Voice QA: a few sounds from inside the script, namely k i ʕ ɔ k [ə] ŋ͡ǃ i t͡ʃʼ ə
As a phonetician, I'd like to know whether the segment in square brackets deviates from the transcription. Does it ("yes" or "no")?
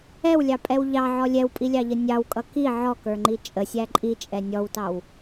yes